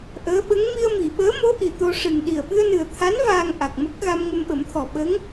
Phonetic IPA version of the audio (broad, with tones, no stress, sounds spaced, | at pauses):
ʔ əː˧˥ ɓ ə˧˥ ŋ m i˧ ə̯ m i˨˩˨ ɓ əː˧˥ m o˧˥ ʔ i˨˩ t̪ o˧ ʂ ɨ˨˩ ŋ ɗ i˨˩ ə̯ ɓ ɨ˧ ə̯ n ɨ˨˩ ə̯ t̪ʰ a˧˥ n v aː˧ ŋ ʔ a˨˩ k̚ m ə˦˥ k̚ ɣ a˧ m ŋ ə˧ m ɓ ə˨˩˦ m t̪ʰ ɔ˨˩ ɓ ə˧˥ ŋ